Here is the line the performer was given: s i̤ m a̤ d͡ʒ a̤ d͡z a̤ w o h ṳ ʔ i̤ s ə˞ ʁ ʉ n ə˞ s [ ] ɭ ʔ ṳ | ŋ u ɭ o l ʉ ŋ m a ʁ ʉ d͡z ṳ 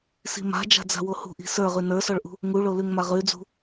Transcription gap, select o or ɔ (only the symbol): ɔ